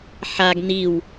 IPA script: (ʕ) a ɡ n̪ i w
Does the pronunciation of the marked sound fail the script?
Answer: yes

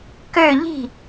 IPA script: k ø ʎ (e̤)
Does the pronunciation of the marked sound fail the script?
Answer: yes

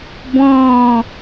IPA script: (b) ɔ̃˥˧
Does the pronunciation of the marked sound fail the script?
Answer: no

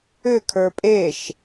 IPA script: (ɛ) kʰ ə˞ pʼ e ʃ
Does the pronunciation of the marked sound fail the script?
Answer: yes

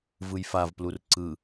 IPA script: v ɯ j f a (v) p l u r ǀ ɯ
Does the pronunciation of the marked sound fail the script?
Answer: no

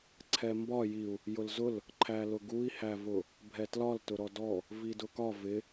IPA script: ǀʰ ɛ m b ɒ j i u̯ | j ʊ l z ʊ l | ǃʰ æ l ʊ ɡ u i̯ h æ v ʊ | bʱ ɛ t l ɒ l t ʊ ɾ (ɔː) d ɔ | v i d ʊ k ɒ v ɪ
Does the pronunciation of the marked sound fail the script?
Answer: yes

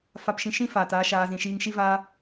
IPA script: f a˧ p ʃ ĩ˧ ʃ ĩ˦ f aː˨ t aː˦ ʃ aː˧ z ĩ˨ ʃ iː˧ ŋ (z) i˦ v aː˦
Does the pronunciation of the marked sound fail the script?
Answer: yes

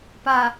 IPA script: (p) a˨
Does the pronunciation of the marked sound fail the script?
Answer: no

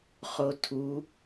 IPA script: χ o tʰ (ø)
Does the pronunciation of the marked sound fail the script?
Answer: yes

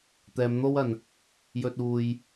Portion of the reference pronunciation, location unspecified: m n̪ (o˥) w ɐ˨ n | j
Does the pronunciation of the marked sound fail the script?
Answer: no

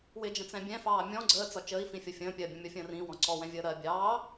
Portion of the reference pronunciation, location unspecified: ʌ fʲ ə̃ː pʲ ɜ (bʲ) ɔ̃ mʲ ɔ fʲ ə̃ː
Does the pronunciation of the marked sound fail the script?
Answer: no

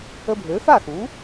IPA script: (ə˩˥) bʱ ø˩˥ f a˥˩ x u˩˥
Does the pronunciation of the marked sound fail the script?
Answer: yes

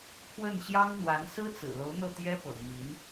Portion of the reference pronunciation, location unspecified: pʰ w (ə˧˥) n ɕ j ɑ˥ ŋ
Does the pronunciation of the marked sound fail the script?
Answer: yes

